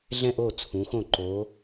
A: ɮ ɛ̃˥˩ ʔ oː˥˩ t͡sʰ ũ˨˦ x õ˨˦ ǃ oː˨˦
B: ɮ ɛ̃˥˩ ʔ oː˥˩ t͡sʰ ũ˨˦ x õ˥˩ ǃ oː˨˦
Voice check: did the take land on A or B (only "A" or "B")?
B